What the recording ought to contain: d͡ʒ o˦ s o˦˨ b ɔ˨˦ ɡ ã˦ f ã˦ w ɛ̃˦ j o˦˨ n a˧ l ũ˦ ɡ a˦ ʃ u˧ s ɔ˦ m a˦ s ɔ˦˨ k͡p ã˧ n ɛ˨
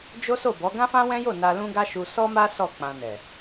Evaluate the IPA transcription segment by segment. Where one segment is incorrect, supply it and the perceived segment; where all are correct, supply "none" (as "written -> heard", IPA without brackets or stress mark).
none